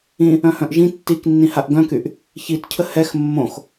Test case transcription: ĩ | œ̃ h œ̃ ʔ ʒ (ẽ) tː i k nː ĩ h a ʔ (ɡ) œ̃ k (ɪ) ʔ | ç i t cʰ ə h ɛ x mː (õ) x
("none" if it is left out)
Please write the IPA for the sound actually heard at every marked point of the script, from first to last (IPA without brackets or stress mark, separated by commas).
ĩ, ɡ, y, õ